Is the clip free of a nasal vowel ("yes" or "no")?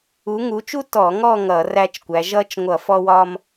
yes